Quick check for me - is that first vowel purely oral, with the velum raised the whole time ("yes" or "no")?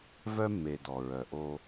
yes